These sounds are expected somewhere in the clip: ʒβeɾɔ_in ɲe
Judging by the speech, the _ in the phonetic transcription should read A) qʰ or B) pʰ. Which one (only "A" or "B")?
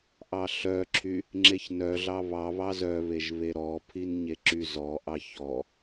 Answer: B